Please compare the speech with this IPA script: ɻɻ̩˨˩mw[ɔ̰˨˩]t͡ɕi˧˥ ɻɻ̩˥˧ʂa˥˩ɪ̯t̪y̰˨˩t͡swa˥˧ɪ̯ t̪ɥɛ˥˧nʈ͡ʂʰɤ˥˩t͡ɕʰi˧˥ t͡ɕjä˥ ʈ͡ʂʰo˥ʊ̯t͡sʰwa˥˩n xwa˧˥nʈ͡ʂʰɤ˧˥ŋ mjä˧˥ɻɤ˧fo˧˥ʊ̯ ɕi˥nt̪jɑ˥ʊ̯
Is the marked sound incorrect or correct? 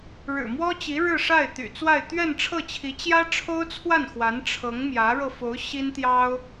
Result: incorrect